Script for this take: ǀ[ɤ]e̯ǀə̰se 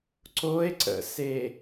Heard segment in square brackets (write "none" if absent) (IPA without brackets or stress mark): o